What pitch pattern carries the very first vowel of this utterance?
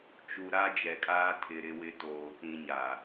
low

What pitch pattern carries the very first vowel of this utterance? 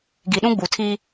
low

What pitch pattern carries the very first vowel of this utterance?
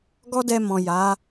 high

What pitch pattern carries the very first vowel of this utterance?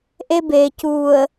high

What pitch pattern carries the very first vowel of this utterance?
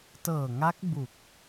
low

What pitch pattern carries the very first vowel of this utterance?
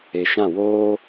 low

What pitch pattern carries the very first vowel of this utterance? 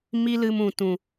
high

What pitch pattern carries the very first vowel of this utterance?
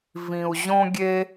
low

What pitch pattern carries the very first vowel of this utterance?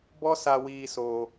high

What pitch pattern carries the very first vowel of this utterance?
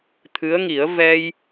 rising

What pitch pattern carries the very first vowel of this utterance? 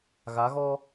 rising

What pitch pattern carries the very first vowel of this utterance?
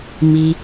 low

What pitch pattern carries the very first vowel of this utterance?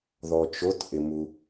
low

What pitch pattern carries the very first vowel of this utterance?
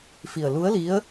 low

